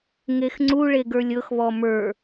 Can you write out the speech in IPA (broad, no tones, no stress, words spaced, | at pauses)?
ŋexŋ͡ǀuɭe ɡə˞lʲɤxβɔ mə˞